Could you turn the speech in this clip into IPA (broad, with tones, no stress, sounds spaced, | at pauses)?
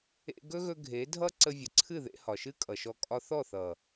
ḛ˧ ɡ ɵ˦ ɣ ɵ˧ ɡʱ e˨˦ dʱ ʌ˦ ǀ ə˧ vʲ ə˨ ǀʰ ɨ˦˨ ð ḛ˧ h ɒ˨ ʃ ɨ˦ kʼ ʌ˨ ʃ ɔ˧ kʼ ɒ˧ θ ɔ˦˨ θ ʌ˨